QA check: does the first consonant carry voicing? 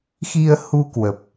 no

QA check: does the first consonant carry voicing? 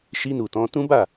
no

